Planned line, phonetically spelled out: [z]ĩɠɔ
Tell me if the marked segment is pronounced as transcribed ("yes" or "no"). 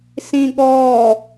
no